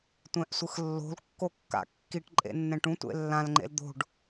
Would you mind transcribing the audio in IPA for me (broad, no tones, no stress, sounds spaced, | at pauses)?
tʷ ɛ̃ ʔ sʷ ɯ x lː o̤ l kː o kː a̰ kː i ʈ ǃʼ ḛ nː ɛ̃ ʈ ũ tʷ ḛ lː ã l ŋ͡ǃ ḛ l d̪ o̤ ɖ